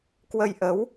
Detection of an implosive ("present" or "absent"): absent